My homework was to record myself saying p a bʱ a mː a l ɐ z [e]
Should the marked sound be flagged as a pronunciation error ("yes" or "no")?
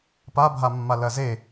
no